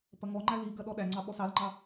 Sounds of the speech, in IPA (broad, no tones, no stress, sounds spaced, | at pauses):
p ɐ ŋ ɔ ŋ͡ǃ æ l i ɡ ɐ ɗ ɔ ɗ æ ŋ͡ǀ ɑ ɓ ɔ s ɑ l ŋ͡ǃ ɑ